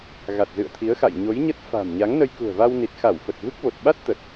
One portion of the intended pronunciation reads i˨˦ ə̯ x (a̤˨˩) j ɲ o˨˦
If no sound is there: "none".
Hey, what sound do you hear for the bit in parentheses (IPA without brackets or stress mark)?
a̰˧˨